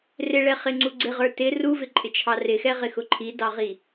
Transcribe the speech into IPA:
rɪɭɛχɪŋ͡ǀu ɡ͡ǀɪʁə˞ tɪ ruvɪǃʼɪt͡ʃʰɑ rɪxɛʁɪxʊ ǃʰidɑʁi

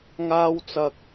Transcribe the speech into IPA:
ŋaː˥w t͡sɐ˥k̚

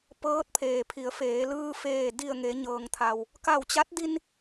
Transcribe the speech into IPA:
pɤː˧˥t̚pʰeː˩pʰi˩˧ə̯feː˩˧ lɯː˧feː˧˩ di˧˩ə̯ ŋe˩˧ɲɤː˩ŋt̪ʰa˩w | ka˧˩wt͡ɕa˧˥t̚ di˧n

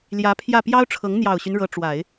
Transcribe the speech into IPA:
ljä˧˥pʰjä˥˩ pjɑ˥ʊ̯ʈ͡ʂʰɤ˧˥ŋ n̪jɑ˨˩ʊ̯ɕy˦n ɻɤ˧˥ʈ͡ʂwa˨˩˦ɪ̯

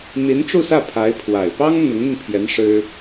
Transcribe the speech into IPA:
n̪i˧˥nʈ͡ʂu˥˧sä˥˩ pʰa˧˥ɪ̯ pʰwa˨˩ɪ̯ pɑ˥ŋ n̪ʊ˧˥ŋn̪i˧npʰjɛ˧˥n ʂɻ̩˥

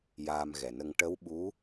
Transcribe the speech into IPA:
jaː˧mɣɛ˨˩nə˧ŋ ʈə˧˥wɓu˧˥

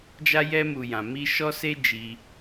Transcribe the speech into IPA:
d͡ʒa˦jɛ˦mu˧ jã˧mi˦ ʃɔ˦se˦ d͡ʒi˧

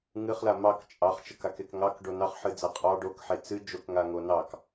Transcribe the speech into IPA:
ŋɨχla mɑk t͡ʃʼɑχt͡ʃəkakek ŋɑkɖo nɑχħɨd͡za qʼɑ ɖokħe t͡sɨ d͡ʒokŋaŋo nɑk

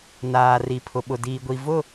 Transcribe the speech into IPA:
naː˨ri˨pʰʊ˨ ɓʊ˨diː˨ɡʷi˨ vʊ˦˨

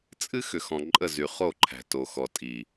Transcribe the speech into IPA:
t͡sʼɨ˦ xʏ˨xɔ̃˨ǃʼə˦˨ zy˨χo˦˨ǃʰæ̤˨ to˨xɔ˨tʼi˨

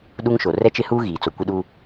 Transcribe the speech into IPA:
ɗu˦ŋʃo˨ rɛ˦t͡ʃɪ˦huː˦ ɣiː˨t͡so˨kʷɪ˦ɗuː˦

